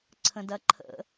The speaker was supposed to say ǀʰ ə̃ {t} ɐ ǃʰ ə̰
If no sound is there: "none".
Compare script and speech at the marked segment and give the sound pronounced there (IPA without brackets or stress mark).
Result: d